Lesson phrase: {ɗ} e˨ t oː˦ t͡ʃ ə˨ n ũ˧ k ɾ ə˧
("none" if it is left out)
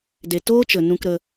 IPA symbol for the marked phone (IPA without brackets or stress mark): d